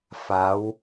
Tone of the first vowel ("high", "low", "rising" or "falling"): rising